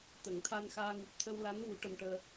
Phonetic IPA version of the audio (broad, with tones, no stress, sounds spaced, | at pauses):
t̪ ə˨˩˨ ŋ t̪ʰ a˧ n x aː˧ ŋ u˨˩ p̚ t̪ʰ ə˧ w l a˧˥ n v u˨˩˦ ʈ ə˧ m ʈ əː˧